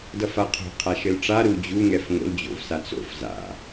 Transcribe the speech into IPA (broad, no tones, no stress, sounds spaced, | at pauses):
d ʌ f a qʰ o̤ qʰ a ʃ ɘ l ʈ͡ʂ a ɾ u d͡ʑ u ŋ ɛ f ŋ o̰ l d͡ʑ o̰ v s a t͡s o̰ f z a̰